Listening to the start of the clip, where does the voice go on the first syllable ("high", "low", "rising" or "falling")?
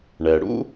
low